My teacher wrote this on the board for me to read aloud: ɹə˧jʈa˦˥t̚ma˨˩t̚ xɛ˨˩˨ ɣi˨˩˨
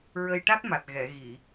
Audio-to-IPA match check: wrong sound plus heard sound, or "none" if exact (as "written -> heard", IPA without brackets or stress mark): x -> ɣ